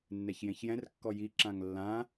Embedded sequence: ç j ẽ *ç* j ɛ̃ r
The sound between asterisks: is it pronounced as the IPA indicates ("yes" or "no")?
yes